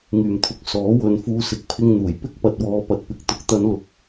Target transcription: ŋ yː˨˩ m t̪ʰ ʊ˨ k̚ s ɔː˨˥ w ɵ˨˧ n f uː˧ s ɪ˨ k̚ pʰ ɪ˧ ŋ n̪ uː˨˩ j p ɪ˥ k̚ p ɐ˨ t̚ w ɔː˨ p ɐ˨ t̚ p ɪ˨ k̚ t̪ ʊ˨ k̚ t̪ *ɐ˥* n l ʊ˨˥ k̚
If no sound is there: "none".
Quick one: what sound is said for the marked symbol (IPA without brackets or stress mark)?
ɐ˨˧